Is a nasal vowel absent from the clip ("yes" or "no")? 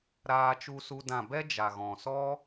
no